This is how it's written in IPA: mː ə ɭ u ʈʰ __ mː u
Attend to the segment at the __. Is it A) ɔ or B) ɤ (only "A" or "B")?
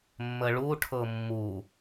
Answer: B